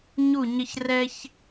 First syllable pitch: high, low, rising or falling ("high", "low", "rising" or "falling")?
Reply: falling